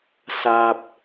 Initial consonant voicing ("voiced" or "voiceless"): voiceless